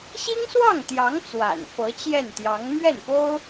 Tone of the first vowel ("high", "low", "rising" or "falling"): high